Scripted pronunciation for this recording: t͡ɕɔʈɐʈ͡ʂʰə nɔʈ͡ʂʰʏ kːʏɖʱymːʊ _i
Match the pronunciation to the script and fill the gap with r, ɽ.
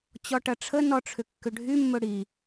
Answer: ɽ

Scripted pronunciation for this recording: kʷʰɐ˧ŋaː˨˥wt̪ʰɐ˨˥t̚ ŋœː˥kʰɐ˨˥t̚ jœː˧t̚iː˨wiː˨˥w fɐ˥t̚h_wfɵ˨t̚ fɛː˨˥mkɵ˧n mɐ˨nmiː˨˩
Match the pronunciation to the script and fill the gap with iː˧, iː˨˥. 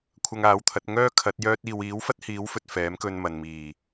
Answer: iː˨˥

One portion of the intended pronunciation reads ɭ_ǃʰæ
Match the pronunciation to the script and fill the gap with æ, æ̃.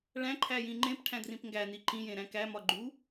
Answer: æ̃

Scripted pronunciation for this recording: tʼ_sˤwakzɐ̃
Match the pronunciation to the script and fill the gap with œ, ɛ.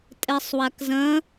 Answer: ɛ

